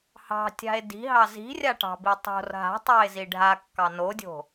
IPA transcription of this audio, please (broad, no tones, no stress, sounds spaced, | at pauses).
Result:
h ɑ̤ tʲ a̤ e̯ d i̤ ɦ ɑ z i̤ rʲ a ʈ ɑ̤ b i tˤ o̤ r ɦ a̤ tˤ ɑ e̯ z i ɖʱ a kː ɑ n o dʲ o̤